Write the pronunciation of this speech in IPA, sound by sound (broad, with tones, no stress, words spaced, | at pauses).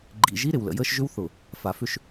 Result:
ɡ͡ǃḭ˨ ʒi˦ ɾɪ˨wlə̰˨jəː˦ʃʒʏ˦w θʊ˨ | fa˨fʏ˦ʃ